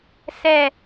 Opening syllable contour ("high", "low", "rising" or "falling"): low